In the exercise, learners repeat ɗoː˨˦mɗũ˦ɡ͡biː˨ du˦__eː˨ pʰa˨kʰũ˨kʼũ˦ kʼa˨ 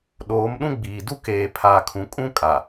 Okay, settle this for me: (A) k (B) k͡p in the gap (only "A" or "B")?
A